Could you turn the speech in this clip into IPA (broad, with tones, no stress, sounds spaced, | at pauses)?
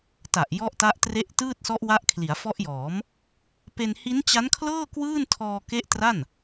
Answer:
t a˨˩ ʔ j ɔ˦˥ ʔ t a˦˥ ʔ t r e˦˥ ʔ t ɯː˥˩ t̚ s ɔ˦˥ ʔ w a˦˥ ʔ kʰ l i˩˦ a̯ f ɔ˦˥ ʔ j ɔː˩˦ m | p e˧ n h i˦˥ n t͡ɕ a˦˥ n kʰ l ɤː˥˩ k w ɯː˥˩ n tʰ ɔː˧ k e˦˥ ʔ t r a˥˩ n